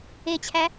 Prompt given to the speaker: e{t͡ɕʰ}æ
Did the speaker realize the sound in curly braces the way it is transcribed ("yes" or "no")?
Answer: yes